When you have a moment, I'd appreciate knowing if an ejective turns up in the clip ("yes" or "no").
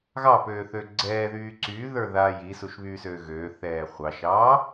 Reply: no